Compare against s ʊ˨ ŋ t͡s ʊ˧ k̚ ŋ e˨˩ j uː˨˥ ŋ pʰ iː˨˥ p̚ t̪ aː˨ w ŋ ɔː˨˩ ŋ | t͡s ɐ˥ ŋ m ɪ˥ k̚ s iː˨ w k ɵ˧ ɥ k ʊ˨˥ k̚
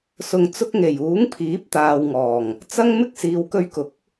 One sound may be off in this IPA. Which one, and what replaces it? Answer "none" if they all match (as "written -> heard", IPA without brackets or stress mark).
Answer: none